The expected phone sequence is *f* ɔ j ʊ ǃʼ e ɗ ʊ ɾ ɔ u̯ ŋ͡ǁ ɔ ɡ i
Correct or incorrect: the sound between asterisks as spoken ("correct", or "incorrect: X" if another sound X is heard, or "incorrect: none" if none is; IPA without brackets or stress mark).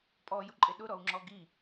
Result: incorrect: pʼ